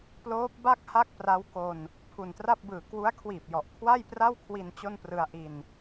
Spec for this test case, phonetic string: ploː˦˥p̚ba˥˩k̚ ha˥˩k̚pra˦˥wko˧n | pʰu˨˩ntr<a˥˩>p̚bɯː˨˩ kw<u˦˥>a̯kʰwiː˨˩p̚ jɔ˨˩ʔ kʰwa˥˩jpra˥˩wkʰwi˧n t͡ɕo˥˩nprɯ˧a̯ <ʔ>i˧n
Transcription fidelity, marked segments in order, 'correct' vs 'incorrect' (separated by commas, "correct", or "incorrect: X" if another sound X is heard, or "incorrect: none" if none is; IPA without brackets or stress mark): correct, correct, correct